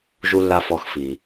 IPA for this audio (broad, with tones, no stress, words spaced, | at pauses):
ʒu˨lːa˨ fɔ˨xfi˩